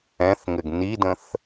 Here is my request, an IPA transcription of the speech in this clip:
ɛ̃ θ ŋ ɘ ɡ n i d ə̃ θ

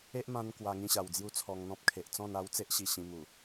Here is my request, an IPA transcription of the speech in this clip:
e˦ ʔ m ã˧ n k w a˧ ŋ ĩ˥˧ ɕ a˨˩ w d͡z j u˦ t͡sʰ ɔ˧ ŋ n̪ ɔ̃˦ p̚ kʰ e˨ ʔ t͡s ɔ̃˥˧ n a˦ w t͡s e˦ ʔ ɕ i˨˩ ɕ ĩ˧ m u˨˩

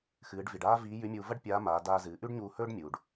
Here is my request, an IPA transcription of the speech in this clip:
x ɨː˩˧ ɖ v i˩ ɖ aː˥ v iː˧˥ j ʉ˧˥ mʲ uː˧ v ɐ˥ ɖ pʲ aː˧˥ m aː˩˧ d aː˧ z ɨː˩˧ ʔ ʉ˥ ɖ ɲ uː˧ h ɵː˥ ɖ mʲ uː˩ ɖ

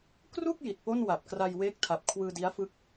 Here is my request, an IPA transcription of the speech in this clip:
k r u˥˩ k̚ j i˨˩ t̚ p o˥˩ n w a˨˩ p̚ k r a˧ j w eː˦˥ k̚ tʰ a˨˩ p̚ kʰ w ɯː˧ d i˦˥ a̯ f ɯ˦˥ k̚

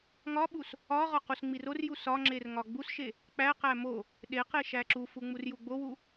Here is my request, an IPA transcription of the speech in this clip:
ŋ ɒ ɓ u s | ɒ ʁ ɒ q u s ŋ͡m i r o r j u s ɒ ŋ͡ǁ e r ŋ ɒ ɡ͡b u s ʃ e | k͡p æ q æ m o | ɗ e q e ʃ æ ǁ u f u ŋ͡m u r j u ɡ͡b o w u

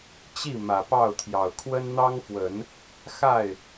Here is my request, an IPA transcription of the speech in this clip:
t͡ɕ i˥˩ m ä˨˩ p ɑ˥˩ ʊ̯ t̪ʰ j ɑ˨˩ ʊ̯ kʰ w ə˥ n n̪ ɑ˥ ŋ f w ə˨˩˦ n | x a˥˩ ɪ̯

